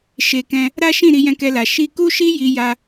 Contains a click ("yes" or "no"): no